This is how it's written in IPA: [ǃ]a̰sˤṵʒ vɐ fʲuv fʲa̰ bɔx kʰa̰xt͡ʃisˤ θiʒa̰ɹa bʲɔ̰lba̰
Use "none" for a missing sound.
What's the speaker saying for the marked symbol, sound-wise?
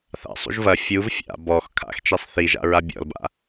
θ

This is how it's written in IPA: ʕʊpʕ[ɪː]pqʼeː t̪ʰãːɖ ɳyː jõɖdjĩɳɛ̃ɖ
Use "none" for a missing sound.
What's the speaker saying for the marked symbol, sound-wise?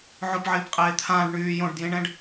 ɪː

